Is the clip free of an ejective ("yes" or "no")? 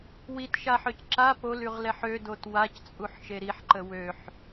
no